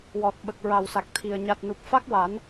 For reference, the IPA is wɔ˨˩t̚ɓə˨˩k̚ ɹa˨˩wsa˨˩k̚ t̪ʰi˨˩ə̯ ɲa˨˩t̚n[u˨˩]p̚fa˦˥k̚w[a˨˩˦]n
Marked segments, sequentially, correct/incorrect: correct, correct

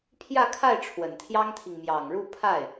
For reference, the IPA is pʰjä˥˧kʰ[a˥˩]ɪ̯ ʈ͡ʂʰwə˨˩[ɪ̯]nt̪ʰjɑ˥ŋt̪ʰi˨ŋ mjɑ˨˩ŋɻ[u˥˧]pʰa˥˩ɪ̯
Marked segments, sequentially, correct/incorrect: correct, incorrect, correct

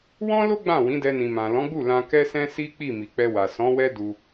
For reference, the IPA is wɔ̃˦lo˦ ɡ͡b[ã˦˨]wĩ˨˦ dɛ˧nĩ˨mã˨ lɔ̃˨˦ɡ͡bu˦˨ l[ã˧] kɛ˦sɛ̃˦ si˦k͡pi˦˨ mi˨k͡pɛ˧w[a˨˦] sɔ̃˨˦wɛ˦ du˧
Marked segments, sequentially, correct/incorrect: correct, correct, incorrect

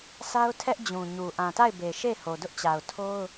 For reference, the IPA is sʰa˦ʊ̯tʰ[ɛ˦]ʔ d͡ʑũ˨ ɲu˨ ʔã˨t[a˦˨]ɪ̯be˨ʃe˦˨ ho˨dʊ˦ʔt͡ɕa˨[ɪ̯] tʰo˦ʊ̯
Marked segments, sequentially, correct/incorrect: correct, correct, incorrect

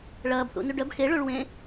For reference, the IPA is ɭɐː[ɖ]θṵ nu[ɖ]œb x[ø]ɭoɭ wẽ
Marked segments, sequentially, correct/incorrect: incorrect, correct, incorrect

